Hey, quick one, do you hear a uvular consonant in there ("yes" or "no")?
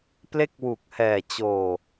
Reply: no